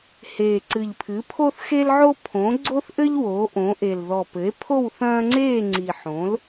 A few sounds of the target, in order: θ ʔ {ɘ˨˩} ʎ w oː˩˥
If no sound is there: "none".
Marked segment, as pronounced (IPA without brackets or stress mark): ɘ˦